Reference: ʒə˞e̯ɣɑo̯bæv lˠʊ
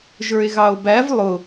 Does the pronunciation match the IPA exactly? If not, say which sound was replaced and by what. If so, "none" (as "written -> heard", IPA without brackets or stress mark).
none